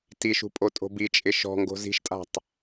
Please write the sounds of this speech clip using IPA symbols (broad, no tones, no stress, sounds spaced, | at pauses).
t i ʃ ṳ pʼ o tʼ o̤ b i t͡ʃʼ ɪ ʃ ɔ̤ ŋ ɡ o̤ z i̤ ʃ tʼ a̤ tˤ